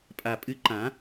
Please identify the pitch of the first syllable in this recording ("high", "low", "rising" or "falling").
low